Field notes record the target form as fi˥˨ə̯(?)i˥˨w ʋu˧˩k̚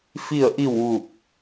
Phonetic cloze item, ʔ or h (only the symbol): ʔ